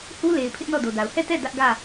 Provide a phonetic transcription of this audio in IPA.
h u˦ l e˨ ɪ̯ pʰ ɪ˦ ʔ n ɔ˦˨ d o˨ d a˨ ʊ̯ h ɛ˦˨ t ɛ˦˨ d ä˦ ʔ ɡ ä˦˨

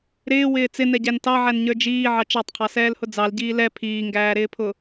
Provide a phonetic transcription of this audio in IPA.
ɾ ɪː w ɪː t͡s ɪ n ɛ ɟ æ n t ɑ ʕ æ n ɲ ə˞ d͡ʒ iː ʕ ɑ t͡ʃ ɑ tˤ qʰ ɑ s ɛː l h ʊ d͡z ɑ l ɟ iː l ɛ pʰ iː ŋ ɡ æː ɾ ɪː pʰ ʊ

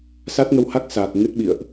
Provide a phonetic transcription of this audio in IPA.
s a˦˥ t̚ ŋ ə˧ w h a˦˥ k̚ s aː˨˩ k̚ ŋ ɨ˦˥ t̚ ɓ ḭ˧˨ ə̯ ʔ

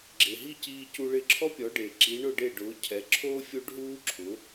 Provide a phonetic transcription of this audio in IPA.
ɡ͡ǁ ɪ˩ ɦ i˥˩ c iː˧ c u˧ ɭ ɪ˧ ǁʰ ɔ˥ pʲ ɔ˩˥ ɖ e˩ ǁ i˩˥ ɳ ʊ˥˩ ɖ e˥˩ ɖ ʊː˩˥ cʰ ɛ˩˥ ǁʰ o˥ fʲ o˥ ɖ ɦ uː˥ ǁʰ ʊ˩˥

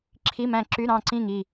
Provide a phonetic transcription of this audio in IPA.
ǁʰ i˧˥˧ m æ̃˦˨ ǁ y˧˥˧ ɾ ɑ̃˦˨ ǀ ĩ˦˨ ŋ i˦˨

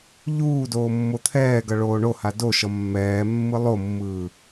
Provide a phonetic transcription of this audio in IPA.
ʎ uː d oː mː o t̪ʰ ɛː ɡ ʌ ɭ oː ɳ o h a d o ʃ ʌ mː ɛː mː ɯ lˠ o mː ɯː

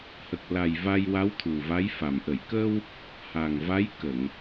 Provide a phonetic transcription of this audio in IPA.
h ə˨˩ k̚ l a˨˩ j v a˧ j w a˧˥ w t̪ʰ u˨˩ v a˧˥ j f a˨˩ m ʔ ə˨˩˨ j k ə˧ w | h a˨˩ ŋ v a˧˥ j k ə˨˩˨ ŋ

